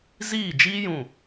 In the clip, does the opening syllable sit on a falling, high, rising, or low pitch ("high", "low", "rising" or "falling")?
falling